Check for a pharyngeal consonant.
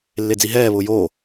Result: absent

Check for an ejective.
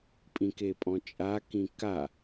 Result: present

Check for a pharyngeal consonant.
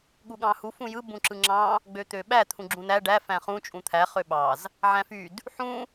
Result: present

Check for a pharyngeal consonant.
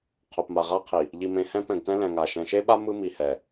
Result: absent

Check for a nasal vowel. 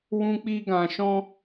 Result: present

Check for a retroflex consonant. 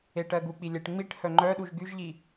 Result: present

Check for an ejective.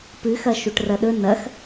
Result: absent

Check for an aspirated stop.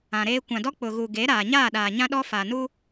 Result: absent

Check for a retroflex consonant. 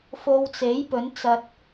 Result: absent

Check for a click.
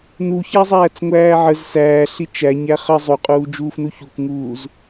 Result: absent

